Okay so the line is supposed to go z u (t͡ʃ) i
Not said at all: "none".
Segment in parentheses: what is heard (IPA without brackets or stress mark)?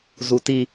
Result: t